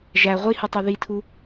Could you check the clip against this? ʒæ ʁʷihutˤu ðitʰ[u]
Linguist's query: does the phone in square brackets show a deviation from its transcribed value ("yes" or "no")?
no